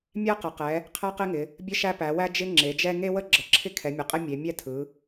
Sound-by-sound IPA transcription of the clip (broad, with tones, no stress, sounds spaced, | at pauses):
mʲ æ˦ q ə˩˧ q ɛ˩˧ | qʰ æ˦ q e˦ ŋ ɪ˩˧ | bʲ ə˦ ʃ æ˦ p æ˩˧ w æ˦ d͡ʒ ɪ˦ ŋ͡ǁ e˩˧ d͡ʒ ɛ˦ ŋ e˦ w ə˦ ɡ͡ǁ ə˩˧ ǁʰ ɪ˦ kʰ ɛ˩˧ mʲ ə˩˧ qʼ ɪ˦ mʲ e˩˧ mʲ ɛ˦ tʰ ɯ˩˧